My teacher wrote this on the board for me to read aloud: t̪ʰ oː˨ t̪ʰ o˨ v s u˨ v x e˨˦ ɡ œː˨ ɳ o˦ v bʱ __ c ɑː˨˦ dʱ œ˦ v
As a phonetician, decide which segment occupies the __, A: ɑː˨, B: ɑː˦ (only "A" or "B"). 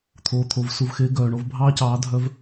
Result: B